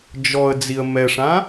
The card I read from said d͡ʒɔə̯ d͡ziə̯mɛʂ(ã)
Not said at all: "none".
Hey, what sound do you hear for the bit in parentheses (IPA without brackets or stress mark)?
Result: ã